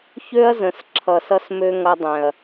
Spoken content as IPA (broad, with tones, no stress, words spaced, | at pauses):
çø˦ɐ̯zə̃˨s ǁʰʌ˨sʌ˧smø˧ ŋʌ˧dˤɛ̃˨ɐ̯